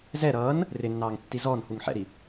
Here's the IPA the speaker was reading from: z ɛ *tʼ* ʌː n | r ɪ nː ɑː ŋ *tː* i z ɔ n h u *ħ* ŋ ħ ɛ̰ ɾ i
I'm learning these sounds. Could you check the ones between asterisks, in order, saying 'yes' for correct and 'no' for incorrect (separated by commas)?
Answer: no, yes, no